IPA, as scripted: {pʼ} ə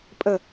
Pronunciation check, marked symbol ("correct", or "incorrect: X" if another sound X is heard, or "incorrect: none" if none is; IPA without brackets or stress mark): correct